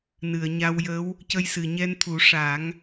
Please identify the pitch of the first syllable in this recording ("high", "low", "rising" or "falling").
low